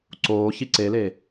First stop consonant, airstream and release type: click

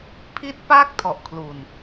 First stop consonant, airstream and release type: aspirated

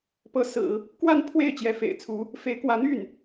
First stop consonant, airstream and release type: plain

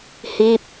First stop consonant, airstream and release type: plain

